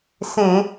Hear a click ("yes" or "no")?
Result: no